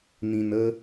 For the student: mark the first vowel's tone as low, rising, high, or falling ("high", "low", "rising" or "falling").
low